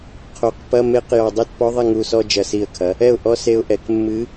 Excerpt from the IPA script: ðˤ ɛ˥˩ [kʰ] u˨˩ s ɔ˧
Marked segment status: incorrect: ŋ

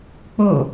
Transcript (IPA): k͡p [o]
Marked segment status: correct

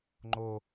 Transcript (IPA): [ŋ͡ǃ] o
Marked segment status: correct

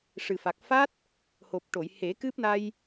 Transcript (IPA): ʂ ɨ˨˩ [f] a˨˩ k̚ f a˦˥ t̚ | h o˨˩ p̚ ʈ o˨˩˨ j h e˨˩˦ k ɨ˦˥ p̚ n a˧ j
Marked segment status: correct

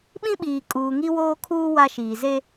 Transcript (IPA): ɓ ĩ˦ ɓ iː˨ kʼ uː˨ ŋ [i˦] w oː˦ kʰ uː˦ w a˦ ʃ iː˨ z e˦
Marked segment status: correct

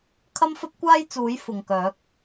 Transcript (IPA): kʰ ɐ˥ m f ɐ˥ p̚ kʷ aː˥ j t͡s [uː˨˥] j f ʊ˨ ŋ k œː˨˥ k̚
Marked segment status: correct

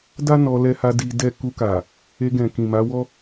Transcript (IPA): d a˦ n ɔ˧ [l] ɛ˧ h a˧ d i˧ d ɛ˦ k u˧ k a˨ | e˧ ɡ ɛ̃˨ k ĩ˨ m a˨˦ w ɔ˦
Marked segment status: correct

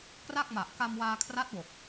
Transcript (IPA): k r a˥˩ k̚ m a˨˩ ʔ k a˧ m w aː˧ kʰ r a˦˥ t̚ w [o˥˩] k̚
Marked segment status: incorrect: o˨˩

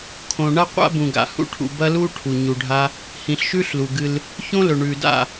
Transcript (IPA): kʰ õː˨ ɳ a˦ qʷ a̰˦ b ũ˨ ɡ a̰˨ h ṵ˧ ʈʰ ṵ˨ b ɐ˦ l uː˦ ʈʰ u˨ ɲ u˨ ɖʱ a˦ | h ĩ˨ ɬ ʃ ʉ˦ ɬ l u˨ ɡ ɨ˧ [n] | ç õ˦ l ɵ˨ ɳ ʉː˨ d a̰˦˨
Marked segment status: incorrect: l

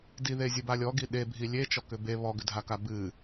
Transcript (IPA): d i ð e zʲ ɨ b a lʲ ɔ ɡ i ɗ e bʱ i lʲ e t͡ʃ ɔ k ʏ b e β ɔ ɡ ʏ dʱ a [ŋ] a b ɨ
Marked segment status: incorrect: k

